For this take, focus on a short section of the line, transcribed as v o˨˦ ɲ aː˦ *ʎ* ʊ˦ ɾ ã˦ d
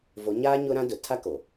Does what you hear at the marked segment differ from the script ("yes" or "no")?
yes